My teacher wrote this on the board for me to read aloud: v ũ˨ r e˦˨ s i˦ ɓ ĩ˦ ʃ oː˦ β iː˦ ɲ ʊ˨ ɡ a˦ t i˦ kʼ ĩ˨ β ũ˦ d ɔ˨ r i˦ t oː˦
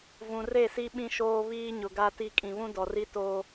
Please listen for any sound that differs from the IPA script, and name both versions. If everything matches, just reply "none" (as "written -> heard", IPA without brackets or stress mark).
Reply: none